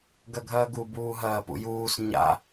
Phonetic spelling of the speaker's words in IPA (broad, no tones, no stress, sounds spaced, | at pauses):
ɡ ɐ ɡʱ ɐː ɡ u b uː ɦ ɐː p ṵ j uː s ɲ a̰